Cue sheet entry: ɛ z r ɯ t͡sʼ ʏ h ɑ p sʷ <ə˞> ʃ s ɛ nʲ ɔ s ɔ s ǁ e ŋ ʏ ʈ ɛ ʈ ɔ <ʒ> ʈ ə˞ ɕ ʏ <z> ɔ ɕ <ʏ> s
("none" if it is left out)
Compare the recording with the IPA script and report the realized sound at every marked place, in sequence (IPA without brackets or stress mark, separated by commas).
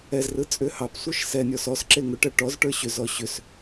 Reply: ə˞, z, z, ʏ